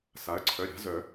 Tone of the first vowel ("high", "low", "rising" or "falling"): rising